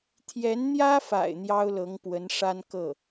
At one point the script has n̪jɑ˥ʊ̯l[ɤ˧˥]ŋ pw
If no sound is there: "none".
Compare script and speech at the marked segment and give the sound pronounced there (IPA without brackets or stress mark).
ɤ˧˥